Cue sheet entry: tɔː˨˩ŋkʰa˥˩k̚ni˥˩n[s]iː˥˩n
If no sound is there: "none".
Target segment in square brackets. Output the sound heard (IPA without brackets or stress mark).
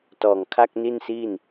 s